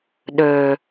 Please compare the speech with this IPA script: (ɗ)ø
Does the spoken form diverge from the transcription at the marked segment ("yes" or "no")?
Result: no